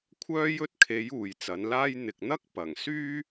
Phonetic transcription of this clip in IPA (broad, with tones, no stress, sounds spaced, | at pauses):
kʷʰ œː˥ j ɵ˥ t̚ kʰ e˨˥ j uː˨ j t͡s ɐ˨˥ n l aː˥ j n̪ ɪ˨ k̚ n̪ ɐ˥ k̚ p ɐ˨˩ ŋ s yː˥